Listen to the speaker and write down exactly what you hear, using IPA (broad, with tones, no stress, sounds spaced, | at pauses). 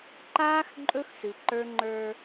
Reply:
ǃ aː˦ x ǃʼ ɵ˦ x s ɨ˨ ǃ ə˞˦ ŋ͡ǃ ə˞˦